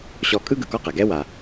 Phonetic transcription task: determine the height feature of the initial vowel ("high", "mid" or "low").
mid